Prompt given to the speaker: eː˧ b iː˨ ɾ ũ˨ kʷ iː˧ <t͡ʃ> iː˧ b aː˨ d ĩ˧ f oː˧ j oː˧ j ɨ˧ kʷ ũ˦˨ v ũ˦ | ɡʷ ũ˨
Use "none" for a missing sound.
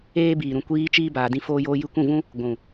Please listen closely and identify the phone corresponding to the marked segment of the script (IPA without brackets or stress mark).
t͡ʃ